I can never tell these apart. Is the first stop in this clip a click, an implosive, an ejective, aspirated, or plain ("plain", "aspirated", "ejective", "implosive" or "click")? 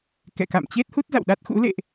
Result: plain